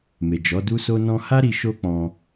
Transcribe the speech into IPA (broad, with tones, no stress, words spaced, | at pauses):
me˨ d͡ʒɔ˨˦du˦so˦ nɔ̃˧ha˦ɾi˧ ʃo˦k͡pɔ̃˧